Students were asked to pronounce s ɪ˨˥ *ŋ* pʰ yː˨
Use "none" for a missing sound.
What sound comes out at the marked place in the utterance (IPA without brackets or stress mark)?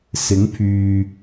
ŋ